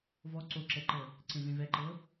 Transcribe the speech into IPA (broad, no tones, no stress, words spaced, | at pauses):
vɔ ǀoǁɛǃɤ | ǀẽvẽvɛǃɤ